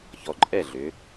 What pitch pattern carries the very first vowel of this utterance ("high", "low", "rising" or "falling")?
low